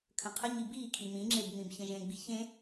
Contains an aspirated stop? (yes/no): yes